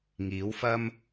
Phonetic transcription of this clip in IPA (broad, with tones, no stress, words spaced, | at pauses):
ŋiː˨˥wfɐ˥m